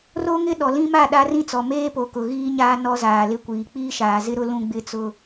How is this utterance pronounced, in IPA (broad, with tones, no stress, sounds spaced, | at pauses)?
r o˦ ŋ ɪ˦ ɗ ɔ˨ l ĩ˦ m a˦˨ ɗ a˦ r ĩ˦ t͡s ɔ˨ m eː˦ p o˨ k ʊ˨ ɣ iː˦ ɲ aː˦ n ɔ˦ z aː˨ l ɪ˦ kʷ iː˨ k͡p iː˦ ʃ aː˨ z ɪ˦ ɾ ʊ˦ l ũ˦ ɡ͡b ɪ˦ t͡s ʊ˦